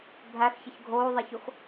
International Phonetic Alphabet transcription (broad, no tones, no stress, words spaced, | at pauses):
bʱæxçəç ɡʱoːðˤɛçox